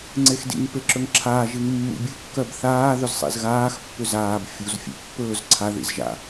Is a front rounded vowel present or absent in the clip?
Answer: present